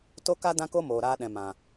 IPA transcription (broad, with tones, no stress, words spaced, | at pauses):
to˦ka˦ dã˦ko˦ moː˨ɾaː˧ɗɛ̃˨ mã˨